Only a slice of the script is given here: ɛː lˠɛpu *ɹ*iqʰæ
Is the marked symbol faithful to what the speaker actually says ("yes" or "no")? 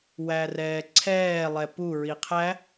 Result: yes